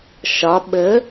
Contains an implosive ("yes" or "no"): yes